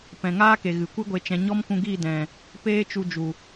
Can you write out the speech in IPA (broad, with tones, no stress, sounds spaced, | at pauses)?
p ɛ̃˨ ŋ aː˦ k e˨ ɣ ɨ˨ kʷ ɨ˦ ɡʷ e˧ t͡ʃ ɛ̃˧ ɲ ɔ˦ m k ũ˧ ɡ iː˦˨ d ɛ̃˨ | p eː˦ t͡ʃ u˧ d͡ʒ u˨